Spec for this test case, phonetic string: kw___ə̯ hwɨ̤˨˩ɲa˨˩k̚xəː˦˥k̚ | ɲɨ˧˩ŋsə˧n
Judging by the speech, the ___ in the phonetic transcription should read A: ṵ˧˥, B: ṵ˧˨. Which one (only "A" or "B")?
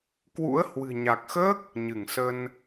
A